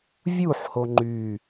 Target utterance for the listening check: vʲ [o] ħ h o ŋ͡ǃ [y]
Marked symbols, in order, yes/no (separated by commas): no, yes